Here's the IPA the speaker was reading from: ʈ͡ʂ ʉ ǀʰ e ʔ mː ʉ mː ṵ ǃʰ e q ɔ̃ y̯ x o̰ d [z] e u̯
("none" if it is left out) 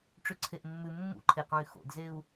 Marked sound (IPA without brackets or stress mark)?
z